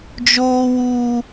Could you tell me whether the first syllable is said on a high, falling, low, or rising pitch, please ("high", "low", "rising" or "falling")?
high